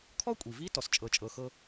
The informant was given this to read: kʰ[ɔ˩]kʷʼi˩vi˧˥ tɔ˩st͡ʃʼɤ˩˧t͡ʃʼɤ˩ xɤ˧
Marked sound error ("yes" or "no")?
yes